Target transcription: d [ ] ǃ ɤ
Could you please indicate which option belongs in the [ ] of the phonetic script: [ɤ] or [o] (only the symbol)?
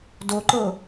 o